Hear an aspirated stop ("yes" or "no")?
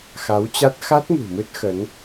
no